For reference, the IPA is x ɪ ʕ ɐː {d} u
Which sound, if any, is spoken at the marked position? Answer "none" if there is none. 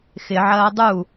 dˤ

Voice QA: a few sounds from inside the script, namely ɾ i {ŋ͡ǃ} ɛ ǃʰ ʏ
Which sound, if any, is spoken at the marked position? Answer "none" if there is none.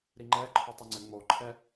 ŋ͡ǃ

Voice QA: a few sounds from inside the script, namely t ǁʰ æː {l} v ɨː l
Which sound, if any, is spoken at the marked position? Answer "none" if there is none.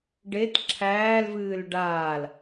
l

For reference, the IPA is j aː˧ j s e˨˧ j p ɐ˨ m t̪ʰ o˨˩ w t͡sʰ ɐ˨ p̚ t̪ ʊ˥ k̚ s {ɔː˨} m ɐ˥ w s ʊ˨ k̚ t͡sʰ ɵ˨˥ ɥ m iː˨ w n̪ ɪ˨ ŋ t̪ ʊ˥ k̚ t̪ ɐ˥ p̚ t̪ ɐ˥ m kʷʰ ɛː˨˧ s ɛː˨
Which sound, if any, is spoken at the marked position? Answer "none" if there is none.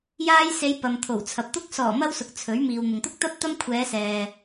ɔː˨˩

